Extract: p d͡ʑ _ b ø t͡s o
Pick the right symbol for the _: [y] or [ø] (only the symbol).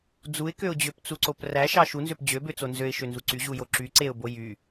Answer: ø